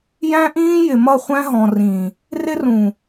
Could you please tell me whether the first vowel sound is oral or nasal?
nasal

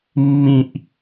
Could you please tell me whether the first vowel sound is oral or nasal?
nasal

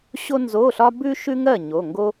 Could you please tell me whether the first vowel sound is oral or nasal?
oral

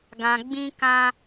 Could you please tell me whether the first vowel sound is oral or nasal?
nasal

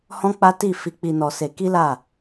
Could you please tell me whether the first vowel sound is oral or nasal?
nasal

